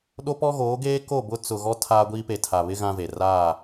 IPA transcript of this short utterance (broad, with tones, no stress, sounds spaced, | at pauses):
ɗ o˦ p ɔ˦ ɣ oː˨˦ ɡ eː˦ k o˦˨ b ʊ˦ t͡s ʊ˨ ɣ ɔ˦ tʰ aː˦ ɡʷ iː˦ p e˨ tʰ a˨ β ɪ˦ ɣ ã˦ v e˨ r a˦˨